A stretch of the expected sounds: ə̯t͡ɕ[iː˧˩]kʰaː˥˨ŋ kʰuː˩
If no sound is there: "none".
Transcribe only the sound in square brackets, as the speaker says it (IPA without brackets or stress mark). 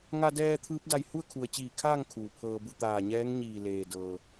iː˧˩